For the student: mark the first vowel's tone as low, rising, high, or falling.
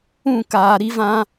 falling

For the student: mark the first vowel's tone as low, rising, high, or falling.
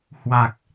low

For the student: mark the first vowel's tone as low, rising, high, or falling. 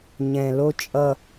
low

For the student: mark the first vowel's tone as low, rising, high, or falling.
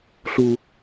high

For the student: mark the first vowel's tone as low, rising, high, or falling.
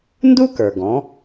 high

